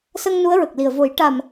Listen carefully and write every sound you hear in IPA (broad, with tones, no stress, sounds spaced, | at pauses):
s ə˧ ŋ n u˧˥ ə̯ ɹ ə˨˩ k̚ l i˨˩ ə̯ v o˨˩˦ j ʈ a˨˩ m